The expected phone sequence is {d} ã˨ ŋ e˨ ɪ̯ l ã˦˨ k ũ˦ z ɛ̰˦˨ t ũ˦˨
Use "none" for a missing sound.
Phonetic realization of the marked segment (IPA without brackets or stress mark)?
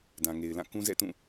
d